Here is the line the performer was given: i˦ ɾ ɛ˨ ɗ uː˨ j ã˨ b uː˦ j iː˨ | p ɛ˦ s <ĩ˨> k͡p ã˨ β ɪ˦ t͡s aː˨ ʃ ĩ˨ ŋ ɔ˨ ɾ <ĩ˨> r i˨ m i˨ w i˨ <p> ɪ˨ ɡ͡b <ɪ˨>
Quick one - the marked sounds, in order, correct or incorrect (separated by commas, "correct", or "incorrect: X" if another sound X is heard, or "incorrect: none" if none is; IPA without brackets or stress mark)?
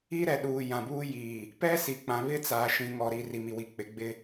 incorrect: i˨, incorrect: i˨, incorrect: k͡p, incorrect: ɪ˦